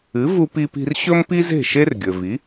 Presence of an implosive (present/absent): absent